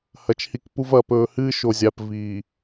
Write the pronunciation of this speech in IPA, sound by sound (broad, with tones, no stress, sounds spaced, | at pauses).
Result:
h ɐ˨ t͡ʃ h i˨˦ k p u˦ v ɐ˨˦ p ɵː˨ h ɨː˦ ʃ o˨ zʲ a˨ p v iː˨